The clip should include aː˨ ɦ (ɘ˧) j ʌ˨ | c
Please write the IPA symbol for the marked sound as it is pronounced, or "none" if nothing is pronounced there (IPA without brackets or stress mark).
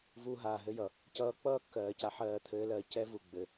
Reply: ɘ˧